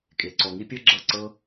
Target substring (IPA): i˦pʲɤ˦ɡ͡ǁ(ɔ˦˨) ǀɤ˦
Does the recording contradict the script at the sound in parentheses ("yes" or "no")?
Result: yes